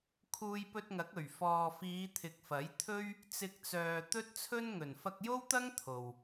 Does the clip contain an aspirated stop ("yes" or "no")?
yes